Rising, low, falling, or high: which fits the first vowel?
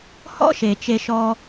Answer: high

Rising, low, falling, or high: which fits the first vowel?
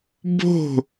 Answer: falling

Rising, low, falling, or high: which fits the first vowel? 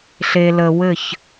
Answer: low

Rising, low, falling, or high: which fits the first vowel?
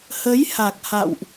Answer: rising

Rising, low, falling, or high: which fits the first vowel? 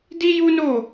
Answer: high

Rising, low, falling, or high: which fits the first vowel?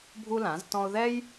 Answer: high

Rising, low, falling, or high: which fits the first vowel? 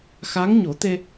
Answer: rising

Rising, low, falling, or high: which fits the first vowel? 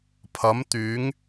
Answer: rising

